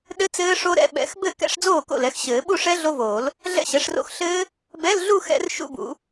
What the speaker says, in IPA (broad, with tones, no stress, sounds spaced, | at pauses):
ɗ ɘ˦˥ t͡s ɘː˦˥ ʂ o˦˥ ɾ ɛ̰˧˥˧ ɓ ɛ̰˨˩˦ x b ɘ˥˩ k ɛ̰˧˥˧ ʂ d͡z oː˥˩ k o̰˥˩ l ɛ˩˥ x ɕ ɘː˨˩˦ ɓ u˥˧ ʂ ɛ˦˥ ɮ o˦˥ v oː˨˩˦ l | ɮ ɛ̰˥˧ ɕ ɛ˩˥ ʂ r o̰˥˩ x ɬ ɘː˦˥ | b ɛ˧˥˧ l ɮ u˥˧ x ɛ̰˦˥ r ʃ ṵ˥˧ b ṵ˨˩˦